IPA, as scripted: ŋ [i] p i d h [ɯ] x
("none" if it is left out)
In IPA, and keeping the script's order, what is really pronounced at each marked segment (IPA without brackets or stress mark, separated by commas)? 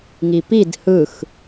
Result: i, ɯ